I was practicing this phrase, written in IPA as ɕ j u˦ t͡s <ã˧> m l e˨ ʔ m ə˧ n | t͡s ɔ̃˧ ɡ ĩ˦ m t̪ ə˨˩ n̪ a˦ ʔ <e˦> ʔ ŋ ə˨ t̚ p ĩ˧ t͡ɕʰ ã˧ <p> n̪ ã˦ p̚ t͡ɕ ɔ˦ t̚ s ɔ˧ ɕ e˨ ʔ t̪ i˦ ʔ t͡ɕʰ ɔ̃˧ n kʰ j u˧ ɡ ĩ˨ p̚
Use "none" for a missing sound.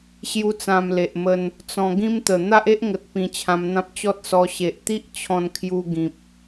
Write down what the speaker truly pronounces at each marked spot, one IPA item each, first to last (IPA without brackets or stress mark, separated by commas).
ã˧, e˦, m